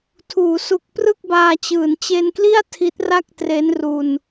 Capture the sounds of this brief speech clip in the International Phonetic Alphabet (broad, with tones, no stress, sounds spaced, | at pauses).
tʰ uː˩˦ s u˨˩ k̚ p r ɯ˥˩ k̚ b aː˧ t͡ɕ ɯː˩˦ n t͡ɕ e˧ n k l i˥˩ a̯ tʰ i˦˥ t̚ r a˥˩ k̚ t r e˦˥ n r u˧ n